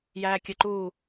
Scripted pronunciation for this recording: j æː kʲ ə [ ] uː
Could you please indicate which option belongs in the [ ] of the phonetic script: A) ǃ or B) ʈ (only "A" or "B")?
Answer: A